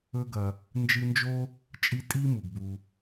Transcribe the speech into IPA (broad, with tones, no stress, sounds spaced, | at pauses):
ɵ˦ ɡ ɐ˨ | n d͡ʒ ɨ˦ n d͡ʒ o˥ | t͡ʃʼ i˦ tʼ i˥ m u˩ ɡ b u˨